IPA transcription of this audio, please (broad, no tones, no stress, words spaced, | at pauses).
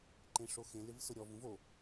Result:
ǃẽʂoxẽ lɪvsʊɾʲɔv ũvo